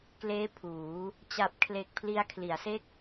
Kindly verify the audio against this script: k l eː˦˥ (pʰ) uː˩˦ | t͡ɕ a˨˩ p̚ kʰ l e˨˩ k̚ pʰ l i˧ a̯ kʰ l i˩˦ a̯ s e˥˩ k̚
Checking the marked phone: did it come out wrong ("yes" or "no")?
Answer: no